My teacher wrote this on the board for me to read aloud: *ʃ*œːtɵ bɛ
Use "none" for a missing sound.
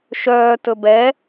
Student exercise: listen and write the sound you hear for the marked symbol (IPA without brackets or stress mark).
ʃ